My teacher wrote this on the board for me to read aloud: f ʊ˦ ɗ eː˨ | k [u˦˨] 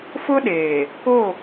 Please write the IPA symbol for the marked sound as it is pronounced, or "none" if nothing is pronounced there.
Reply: o˦˨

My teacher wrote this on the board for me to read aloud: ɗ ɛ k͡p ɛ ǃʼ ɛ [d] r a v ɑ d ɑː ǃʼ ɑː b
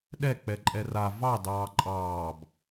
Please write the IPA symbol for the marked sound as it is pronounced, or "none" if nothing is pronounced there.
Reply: none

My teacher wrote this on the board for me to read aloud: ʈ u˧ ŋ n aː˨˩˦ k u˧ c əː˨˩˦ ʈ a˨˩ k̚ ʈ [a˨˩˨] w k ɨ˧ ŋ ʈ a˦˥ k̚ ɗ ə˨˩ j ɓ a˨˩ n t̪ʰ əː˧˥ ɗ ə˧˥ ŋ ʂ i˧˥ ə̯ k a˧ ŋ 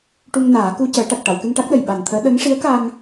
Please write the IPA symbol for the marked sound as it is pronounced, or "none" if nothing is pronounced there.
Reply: a˨˩˨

